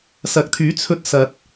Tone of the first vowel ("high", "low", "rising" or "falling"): rising